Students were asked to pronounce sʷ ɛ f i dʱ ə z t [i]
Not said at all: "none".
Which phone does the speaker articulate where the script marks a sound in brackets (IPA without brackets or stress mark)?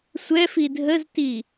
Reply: i